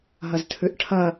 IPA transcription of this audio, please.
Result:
ɦ ɐ z tʰ ʉ ʔ ʈʰ ɐ

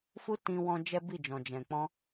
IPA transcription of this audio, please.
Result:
f u˦ t ĩ˧ w ɔ̃˧ d͡ʒ ɛ˦ b i˦˨ d͡ʒ ɔ̃˨ d͡ʒ ɛ̃˨ k͡p ɔ̃˧

